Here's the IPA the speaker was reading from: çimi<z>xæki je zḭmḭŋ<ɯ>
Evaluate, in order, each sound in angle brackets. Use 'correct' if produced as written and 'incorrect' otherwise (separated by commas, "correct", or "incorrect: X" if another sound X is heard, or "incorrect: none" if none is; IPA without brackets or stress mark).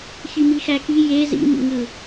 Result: incorrect: none, correct